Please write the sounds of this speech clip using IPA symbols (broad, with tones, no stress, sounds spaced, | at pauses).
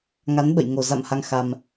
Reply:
ŋ a˨˦ n ɓ ə̰˧˨ j ŋ o˨˩ z a̰˧˨ m h a˧ ŋ x a˧ m